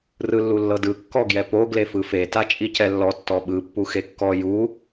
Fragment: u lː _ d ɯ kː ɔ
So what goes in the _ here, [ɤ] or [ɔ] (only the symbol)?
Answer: ɤ